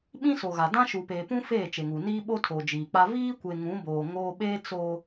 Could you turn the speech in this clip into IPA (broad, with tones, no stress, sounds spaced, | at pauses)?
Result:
ɓ ĩ˦ s o˨ ɣ a˨ d ã˦ ʃ u˨ p eː˨ p ũ˦ f eː˦˨ t͡ʃ e˨ ŋ u˨ n iː˦ ɓ o˦ tʰ oː˨ d͡ʒ iː˨ k͡p a˦ v iː˦ kʷ e˨ ŋ ũ˨˦ b oː˨ ŋ oː˦ ɓ eː˦ t͡s o˦